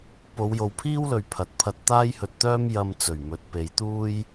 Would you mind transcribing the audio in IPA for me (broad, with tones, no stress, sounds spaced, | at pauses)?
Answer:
p o˨˧ w j o˨ w pʰ iː˥ w l ɵ˨ ɥ pʰ ɐ˨ t̚ pʰ ɐ˧ t̚ t̪ aː˥ j h ɵ˧ t̚ t̪ œː˥ m j ɐ˧ m t͡s ɵ˨˩ ɥ m ɵ˨˥ t̚ p e˨˧ j t̪ uː˥ j